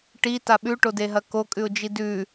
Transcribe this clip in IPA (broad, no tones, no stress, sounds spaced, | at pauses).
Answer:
ʈ i t a ɓ ʉ ʈ o d e ɦ ɐ k o kʼ ʉ ʊ̯ d͡ʒ i d ʉ